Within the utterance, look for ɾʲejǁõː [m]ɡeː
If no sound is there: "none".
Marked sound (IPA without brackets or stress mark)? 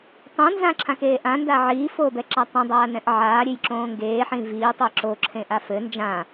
ŋ